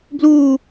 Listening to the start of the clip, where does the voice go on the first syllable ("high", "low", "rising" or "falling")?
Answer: falling